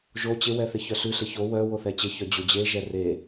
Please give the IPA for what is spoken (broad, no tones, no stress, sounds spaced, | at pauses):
ʒ o t͡ɕ ɪ w ɛ θ ɪ ç œ ɬ ʉ ɬ ɪ ç o w œ w o θ ɛ t͡ɕ ɪ ç œ d͡ʑ o d͡ʑ e ʒ ɛ r e